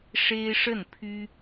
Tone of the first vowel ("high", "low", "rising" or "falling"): high